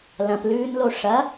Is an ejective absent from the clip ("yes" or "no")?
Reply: yes